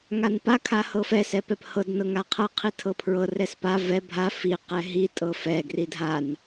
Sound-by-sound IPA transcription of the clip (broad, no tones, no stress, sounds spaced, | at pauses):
ŋ a n p a kʰ a h ɤ f ɛ s ɛ p ɛ p h ɤ d n ɤ ŋ a qʰ ɤ qʰ i tʰ ɤ pʰ ɹ ɤ r ɛ s p a v ɛ bʱ a f i q ɛ ɦ i tʼ ɤ f ɛ ɡ r i dʱ a n